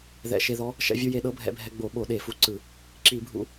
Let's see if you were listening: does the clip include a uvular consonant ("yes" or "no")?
no